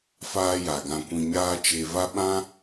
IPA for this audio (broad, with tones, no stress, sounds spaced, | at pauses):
f aː˧ j a˨ ɡ ã˧ kʷ ĩ˧ ɲ aː˦ t͡ʃ e˧ v a˦ ɓ ã˦